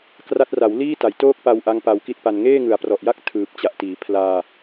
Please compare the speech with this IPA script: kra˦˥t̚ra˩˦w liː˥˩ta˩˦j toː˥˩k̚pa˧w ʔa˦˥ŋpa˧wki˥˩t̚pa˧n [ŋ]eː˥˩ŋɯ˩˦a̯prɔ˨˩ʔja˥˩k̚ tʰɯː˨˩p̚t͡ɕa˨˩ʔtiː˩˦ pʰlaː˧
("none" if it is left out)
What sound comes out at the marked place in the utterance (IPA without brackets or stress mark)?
ŋ